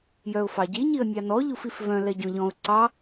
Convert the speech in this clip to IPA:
j œ ʊ̯ f ɑ ɟ i ɲ i ə̯ nʲ ɑ n ɔ ʎ u f i f v œ̃ l ɛ ɟ ɔ̃ ʎ ɔ̃ ʊ̯ ǀ ɑ

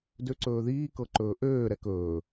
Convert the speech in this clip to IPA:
d ø ǀ ɵː ð iː k ɤ ǃ ɵː ʔ øː ɾ ɛ k ɵː

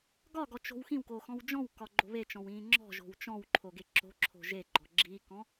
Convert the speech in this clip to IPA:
ɡ ɒ ɡ ɔ t͡ʃ o̤ w x ĩ w k o x ɔ̃ w d͡ʒ ɔ̃ w k ɒ ɡ͡ǃ o̤ β e t͡ʃ ɔ̃ w ĩː ŋ͡ǁ ɔ̤ ʒ o̤ w t͡ʃ ɔ̃ w ǃʰ o ɡ e ǁ o̤ ǁʰ o̤ ʒ e ɡ͡ǃ ɔ ɡ͡ǁ i k ɔ̃

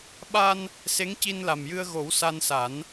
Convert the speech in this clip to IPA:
ɓ a˧ n | s e˧˥ ŋ c i˧ n l a˨˩ m j ɨ˧ ə̯ ɣ o˨˩˦ w s a˧ n s a˨˩˦ n

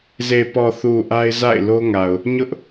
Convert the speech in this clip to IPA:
z e˨ p ɔ˨ θ u˨ ʔ a˦ ɪ̯ z a̰˦˨ ɪ̯ l o˦ ŋ a˨ ʊ̯ | ɲ ʊ˦ ʔ

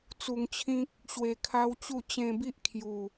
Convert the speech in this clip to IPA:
t͡s u˧ ŋ t͡ɕʰ ĩ˦ k̚ | ɕ w e˧ kʰ a˦ w t͡ɕ u˥˧ t͡ɕ ẽ˧ b i˦ ʔ kʰ j u˨˩

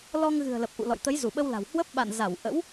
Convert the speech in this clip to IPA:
l ɔ˧ ŋ ɣ ɨ̤˨˩ ə̯ l ə˨˩ p̚ ʔ ṵ˧˨ l ɔ̰˧˨ j t̪ ə˨˦ j z u˧˩ ɓ ə˧ w l a̤˨˩ w h w ə˦˥ p̚ ɓ a̰˧˨ n z a˧˩ w ʔ ə̰˧˥ w

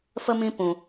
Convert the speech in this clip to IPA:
f ə˦ m ĩ˦ p ũ˦

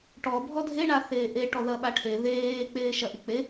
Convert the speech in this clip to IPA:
ʈ ɔ bʱ ɔ dʱ e ɳ a θ eː ʔ e ʈ ɔ ð ɐ ɓ a ʈʰ e ð eː k͡p eː ʃ ɐ ʔ i k͡p e

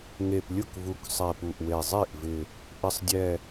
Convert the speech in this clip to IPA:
ŋ e˨˩ p lʲ ʊ˥˩ k v u˨˩ k sˤ ɛ˨˩ p u˨˩ ʔ w e˨˩ zˤ i˥˩ ʔ v ɪ˨˩ | ʔ ɪ˨˩ sˤ dʲ ɛ˨˩

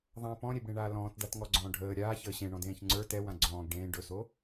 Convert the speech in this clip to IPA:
ðˤ ã p ɔ̃ ɾʲ e b ɽ ẽ ɳ aː l ɔ̃ː t d a t ŋ ɔ ɡ͡ǀ ɔ̃ː ɖʱ əː ɾʲ aː ç əː ɕ ẽ ɳ ɔ̃ d ẽː ç ŋ͡ǀ ə˞ t ɛ w ã ɡ͡ǀ ɔ̃ː ɡ ɖ ẽː ɖ ɵ s o

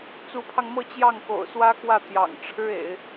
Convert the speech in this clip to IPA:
t͡s u˧˥ pʰ ɑ˧ ŋ m ɤ˥˧ t͡ɕ j ɑ˥˩ ŋ k o̰˨˩ ʊ̯ s w ä˥ k w ä˥˩ t̪ j ɑ̰˨˩ ŋ ʈ͡ʂʰ ɻ̩˥ ḛ˨˩˦ ɪ̯

